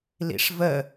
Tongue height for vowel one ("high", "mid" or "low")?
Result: high